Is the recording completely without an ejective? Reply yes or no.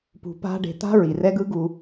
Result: yes